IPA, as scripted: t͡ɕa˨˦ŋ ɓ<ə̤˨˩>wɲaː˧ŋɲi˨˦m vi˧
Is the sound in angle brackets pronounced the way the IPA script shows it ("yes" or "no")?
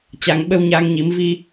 no